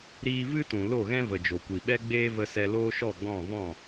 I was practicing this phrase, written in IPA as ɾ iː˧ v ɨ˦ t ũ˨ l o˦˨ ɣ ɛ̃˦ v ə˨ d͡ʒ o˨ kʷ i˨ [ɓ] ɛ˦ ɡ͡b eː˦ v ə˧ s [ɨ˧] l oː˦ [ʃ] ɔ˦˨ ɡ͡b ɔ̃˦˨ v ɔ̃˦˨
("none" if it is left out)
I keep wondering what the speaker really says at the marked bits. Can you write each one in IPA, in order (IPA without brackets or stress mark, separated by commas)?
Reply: ɓ, ɛ˧, ʃ